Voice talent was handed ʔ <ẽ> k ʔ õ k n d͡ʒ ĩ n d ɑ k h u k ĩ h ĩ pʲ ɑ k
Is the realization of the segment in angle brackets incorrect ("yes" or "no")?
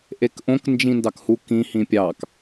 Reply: yes